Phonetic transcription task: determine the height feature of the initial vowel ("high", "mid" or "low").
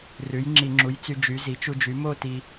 high